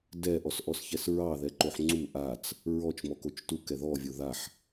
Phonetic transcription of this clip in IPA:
d ɛ ʔ ɔ s ʔ ɔ s ç ɛ s ɹ ɑ ð ɛ ǃ o ħ ŋ͡ǀ u ʔ a t͡s | ɹ ɔ t͡ʃ m ɔ k o t͡ʃ t u k ɛ ð ɔ vʲ o ð a ħ

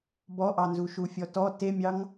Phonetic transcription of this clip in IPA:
b ɔ ʔ ɑ n z u ʃ u fʲ ɔ t ɔ t e mʲ ɑ ŋ

